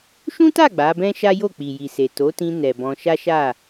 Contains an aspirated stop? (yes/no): no